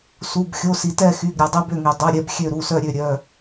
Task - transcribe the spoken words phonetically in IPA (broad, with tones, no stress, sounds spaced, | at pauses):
s u˩˧˩ b xʲ o˩˧˩ s i˩ t ɛ˦˨ x y˩˧˩ ɡ ɾʲ œ˩ dˤ i˦˨ b ø˦˨ ŋ i˩ dˤ œ˩˧˩ ɾʲ ɛ˦˨ b xʲ ø˦˨ ɾ u˩˧˩ s œ˦˨ ɾʲ ø˦˨ ɾʲ œ˩˧˩